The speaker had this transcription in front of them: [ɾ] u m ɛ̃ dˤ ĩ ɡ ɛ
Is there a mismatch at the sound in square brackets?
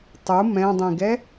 yes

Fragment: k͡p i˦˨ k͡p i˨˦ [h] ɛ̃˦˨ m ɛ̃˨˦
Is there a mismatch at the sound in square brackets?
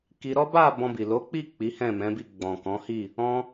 no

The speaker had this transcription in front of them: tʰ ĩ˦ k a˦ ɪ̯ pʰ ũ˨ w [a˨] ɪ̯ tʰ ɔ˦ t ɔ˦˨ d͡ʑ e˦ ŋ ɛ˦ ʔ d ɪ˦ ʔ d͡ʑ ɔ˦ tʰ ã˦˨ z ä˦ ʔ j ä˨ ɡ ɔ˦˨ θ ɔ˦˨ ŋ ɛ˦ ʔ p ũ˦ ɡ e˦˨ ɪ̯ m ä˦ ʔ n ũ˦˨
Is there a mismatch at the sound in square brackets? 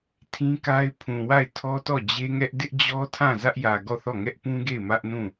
yes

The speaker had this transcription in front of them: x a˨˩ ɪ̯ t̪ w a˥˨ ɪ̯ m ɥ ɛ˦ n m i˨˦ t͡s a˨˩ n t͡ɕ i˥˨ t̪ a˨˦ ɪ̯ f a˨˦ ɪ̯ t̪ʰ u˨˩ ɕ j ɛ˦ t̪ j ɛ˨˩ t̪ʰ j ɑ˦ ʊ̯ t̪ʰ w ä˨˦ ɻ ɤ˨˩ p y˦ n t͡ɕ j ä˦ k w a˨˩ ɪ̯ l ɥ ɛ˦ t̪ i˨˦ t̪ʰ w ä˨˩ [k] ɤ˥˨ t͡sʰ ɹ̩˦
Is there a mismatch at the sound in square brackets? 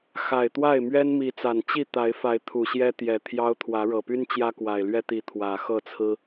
yes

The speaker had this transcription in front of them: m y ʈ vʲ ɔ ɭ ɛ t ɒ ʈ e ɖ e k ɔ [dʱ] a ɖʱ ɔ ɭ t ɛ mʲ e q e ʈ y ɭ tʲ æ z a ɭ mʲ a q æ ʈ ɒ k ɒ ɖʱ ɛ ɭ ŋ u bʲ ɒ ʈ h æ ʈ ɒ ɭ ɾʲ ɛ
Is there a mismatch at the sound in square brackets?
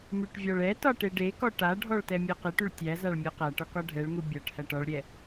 yes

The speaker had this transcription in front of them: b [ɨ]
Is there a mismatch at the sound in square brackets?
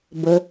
yes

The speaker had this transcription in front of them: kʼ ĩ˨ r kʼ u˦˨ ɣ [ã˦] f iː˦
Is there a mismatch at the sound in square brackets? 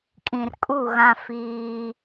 no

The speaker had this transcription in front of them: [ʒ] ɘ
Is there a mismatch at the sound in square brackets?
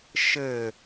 yes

